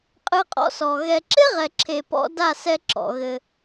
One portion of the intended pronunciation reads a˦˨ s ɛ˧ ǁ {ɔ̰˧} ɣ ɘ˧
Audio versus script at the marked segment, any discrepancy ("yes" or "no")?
yes